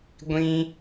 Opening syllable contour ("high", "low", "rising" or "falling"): high